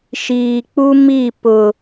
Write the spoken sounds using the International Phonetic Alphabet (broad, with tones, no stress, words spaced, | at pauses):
ʃiː˨k͡pu˦mi˦˨ pʊ˨